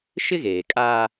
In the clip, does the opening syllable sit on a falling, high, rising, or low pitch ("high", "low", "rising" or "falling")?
high